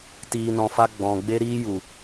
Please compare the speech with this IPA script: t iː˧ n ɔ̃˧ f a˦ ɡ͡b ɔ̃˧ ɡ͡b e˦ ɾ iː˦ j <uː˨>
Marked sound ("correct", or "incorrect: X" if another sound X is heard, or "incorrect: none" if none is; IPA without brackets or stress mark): incorrect: u˨